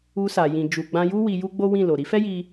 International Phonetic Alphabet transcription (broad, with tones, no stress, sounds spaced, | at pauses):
u˧ s a˨ j ĩ˨ d͡ʒ u˨ ɡ͡b ã˧ j u˦ w i˧ j u˦ ɡ͡b o˦ w ĩ˦˨ l o˨ ɾ i˨˦ f ɛ˦ j i˧